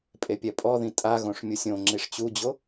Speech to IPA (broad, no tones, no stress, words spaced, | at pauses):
pʼepʲɛpʼɔðĩ tʼaɣõʂ mʲusʲõŋ͡ǁiʂ t͡ɕud͡ʑo